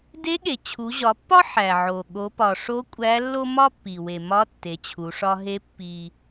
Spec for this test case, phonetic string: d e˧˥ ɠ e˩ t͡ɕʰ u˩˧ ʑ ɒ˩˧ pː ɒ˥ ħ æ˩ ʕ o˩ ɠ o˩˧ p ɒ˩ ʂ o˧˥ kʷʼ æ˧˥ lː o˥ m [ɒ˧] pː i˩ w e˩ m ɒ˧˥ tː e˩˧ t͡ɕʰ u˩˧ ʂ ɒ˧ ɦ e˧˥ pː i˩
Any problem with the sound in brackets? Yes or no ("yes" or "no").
yes